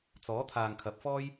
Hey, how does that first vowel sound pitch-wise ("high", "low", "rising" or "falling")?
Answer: rising